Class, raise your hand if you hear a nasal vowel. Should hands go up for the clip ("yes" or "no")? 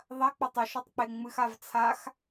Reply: no